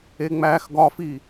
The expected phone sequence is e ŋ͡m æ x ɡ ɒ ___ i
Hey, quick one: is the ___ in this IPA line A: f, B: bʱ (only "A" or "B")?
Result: A